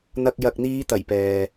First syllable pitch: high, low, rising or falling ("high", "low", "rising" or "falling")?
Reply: low